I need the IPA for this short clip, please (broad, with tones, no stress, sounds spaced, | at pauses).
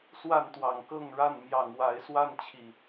s w a˥˨ n t̪ w ɑ˨˩ ŋ k ɤ˥˨ ŋ ɻ a˥˨ n m j ɑ˨˩ ŋ w a˨˦ ɪ̯ s w a˥˨ n t͡ɕʰ i˨˩